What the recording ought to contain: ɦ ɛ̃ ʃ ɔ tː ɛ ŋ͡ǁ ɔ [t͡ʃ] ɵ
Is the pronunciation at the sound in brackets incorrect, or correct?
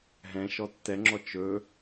correct